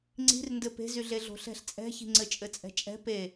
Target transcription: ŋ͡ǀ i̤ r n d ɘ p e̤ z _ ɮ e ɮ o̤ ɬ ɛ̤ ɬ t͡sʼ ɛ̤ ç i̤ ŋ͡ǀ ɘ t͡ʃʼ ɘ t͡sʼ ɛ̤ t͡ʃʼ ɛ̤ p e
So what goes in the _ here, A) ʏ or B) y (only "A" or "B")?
B